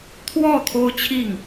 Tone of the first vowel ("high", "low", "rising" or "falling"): falling